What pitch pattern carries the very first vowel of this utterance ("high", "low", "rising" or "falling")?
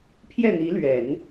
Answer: falling